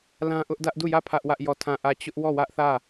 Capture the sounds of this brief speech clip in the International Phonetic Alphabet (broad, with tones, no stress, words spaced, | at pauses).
lã˦ʔʊ˦ʔdä˦ʔ du˦˨jä˦˨ pʰä˦ʔwä˦ʔjɔ˦˨ tʰã˦˨ʔä˦˨ t͡ɕʊ˦ʔwɔ˦˨wä˦ʔθä˦˨